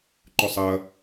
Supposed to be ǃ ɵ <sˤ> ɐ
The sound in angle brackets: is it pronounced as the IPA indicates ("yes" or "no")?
yes